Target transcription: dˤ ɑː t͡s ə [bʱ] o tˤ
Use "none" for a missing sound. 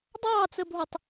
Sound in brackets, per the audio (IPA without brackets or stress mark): bʱ